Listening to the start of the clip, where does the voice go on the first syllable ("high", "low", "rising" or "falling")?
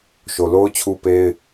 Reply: low